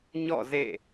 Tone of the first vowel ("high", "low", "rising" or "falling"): falling